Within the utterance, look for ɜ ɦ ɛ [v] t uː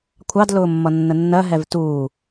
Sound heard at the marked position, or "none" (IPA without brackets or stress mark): v